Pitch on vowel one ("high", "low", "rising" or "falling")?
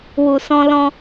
low